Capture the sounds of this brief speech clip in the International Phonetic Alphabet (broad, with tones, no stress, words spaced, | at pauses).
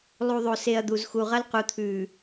lˠu˨ðˤo˨se˨ɐ̯ d̪u˨zxu˨ʁɐ˦l qu˨t̪ʰʉː˨